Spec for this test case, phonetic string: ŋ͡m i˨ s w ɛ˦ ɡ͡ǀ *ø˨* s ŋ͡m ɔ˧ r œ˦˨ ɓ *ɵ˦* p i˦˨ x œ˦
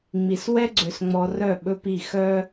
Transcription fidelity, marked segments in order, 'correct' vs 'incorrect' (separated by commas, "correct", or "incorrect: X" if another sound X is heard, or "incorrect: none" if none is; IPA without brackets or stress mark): correct, correct